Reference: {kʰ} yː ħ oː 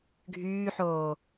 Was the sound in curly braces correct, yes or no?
no